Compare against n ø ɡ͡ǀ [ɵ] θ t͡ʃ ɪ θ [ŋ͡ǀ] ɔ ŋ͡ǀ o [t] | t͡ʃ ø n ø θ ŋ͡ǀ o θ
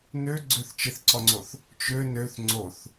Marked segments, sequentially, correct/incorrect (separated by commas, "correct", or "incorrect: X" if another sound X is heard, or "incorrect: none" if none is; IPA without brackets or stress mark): incorrect: ø, incorrect: ǀ, incorrect: θ